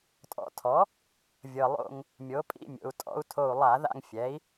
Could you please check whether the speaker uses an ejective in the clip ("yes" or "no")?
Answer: yes